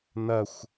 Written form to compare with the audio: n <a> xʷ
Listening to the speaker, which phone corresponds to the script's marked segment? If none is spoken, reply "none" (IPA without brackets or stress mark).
ɐ